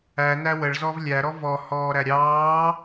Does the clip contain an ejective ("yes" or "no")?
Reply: no